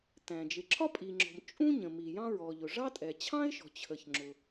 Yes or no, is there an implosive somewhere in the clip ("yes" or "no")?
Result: no